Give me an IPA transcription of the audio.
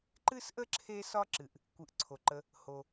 ǃ ɨ˥ s ʔ ə˥ ǁʰ e˦ s ɒ˦ ǁ ɨ˩ ʔ | kʷ ɨ˨ ʔ ǀʰ o˩ ǃ ə˨ | h o˩

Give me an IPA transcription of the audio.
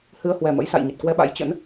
h ɨ˧ ə̯ h w ɛ˨˩ m ə̰˧˥ j s a̰˧˨ j ɲ ə˨˩ t̚ k w ɛ˧ ɓ a̰˧˥ j t͡ɕ ə̰˧˥ n

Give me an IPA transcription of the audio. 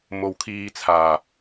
m o˨ w kʰ iː˧ t͡sʰ aː˨˩

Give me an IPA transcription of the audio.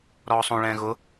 ɾ ɔː sˤ õ ɭ ɛ̃ː ɣ ʊ

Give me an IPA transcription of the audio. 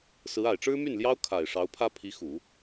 s ɹ̩˧˥ a˨˩ ɪ̯ ʈ͡ʂ ɻ̩˥ m y˥˩ n l j ɑ˥ ʊ̯ kʰ a˨˩ ɪ̯ ʂ ɑ˧˥ ʊ̯ pʰ ä˥ pʰ i˧˥ x u˨˩˦

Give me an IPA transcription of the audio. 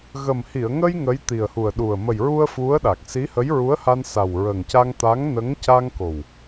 ɣ ə˨˩ m h i˨˩˨ ə̯ ŋ ə˧ j ŋ ə˧˥ j t̪ i˨˩ ə̯ h u˨˩ ə̯ ɗ u˨˩ ə̯ m ə˨˩ j ɹ u˧ ə̯ f u˧˥ ə̯ ɗ a˨˩ k̚ s i˧˥ h ə˧˥ j ɹ u˧˥ ə̯ h a˧ n s a˨˩ w ɹ ə˨˩ ŋ c a˧ ŋ t̪ a˧˥ ŋ n ə˧˥ ŋ c a˧ ŋ k o˨˩ w

